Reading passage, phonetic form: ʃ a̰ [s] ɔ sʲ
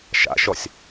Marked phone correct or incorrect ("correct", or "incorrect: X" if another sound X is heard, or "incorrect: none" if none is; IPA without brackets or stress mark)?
incorrect: ʃ